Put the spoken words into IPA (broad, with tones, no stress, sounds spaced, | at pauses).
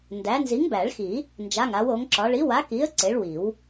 n d æ˨˥ n z i˨˥ ŋ b æ˨˩˦ ɭ x i˨˩˦ | n d͡ʒ a˧˥˧ ŋ a˨˥ w o˨˥ ŋ ǁ ɒ˨˥ ɭ i˨˥ w a˨˥ k i˨˥ ə̯ ǀ e˨˥ ɭ w i˨˩˦ w